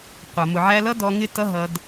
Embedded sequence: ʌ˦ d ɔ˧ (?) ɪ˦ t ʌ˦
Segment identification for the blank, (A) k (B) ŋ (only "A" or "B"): B